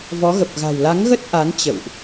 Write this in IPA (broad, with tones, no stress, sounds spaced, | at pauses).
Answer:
v ɔ˨˦ ɣ ə˨˩ p̚ ɣ a̤˨˩ w l a˨˦ ŋ ɣ ə˦˥ t̚ ʔ a˨˦ n t͡ɕ ə̰˧˨ w ʔ